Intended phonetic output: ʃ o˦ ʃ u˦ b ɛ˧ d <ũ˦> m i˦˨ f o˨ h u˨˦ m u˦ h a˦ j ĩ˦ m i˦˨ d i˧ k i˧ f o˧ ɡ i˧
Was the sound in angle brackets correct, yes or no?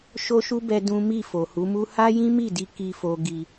yes